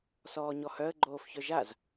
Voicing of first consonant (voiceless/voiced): voiceless